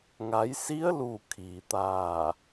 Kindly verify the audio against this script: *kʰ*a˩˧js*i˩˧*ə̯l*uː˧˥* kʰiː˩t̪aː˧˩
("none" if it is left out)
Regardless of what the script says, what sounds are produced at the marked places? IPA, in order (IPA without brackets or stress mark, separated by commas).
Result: ŋ, i˧˥, uː˧˩